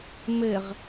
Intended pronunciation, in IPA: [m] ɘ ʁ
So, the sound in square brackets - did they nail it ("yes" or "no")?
yes